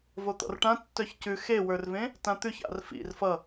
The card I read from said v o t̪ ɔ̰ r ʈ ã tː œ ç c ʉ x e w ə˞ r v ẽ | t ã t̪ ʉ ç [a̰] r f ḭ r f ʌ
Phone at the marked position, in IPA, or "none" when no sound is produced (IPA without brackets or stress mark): a̰